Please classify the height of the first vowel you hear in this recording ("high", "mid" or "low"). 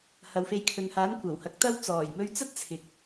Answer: low